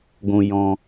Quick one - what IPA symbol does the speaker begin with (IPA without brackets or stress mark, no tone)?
ɡʷ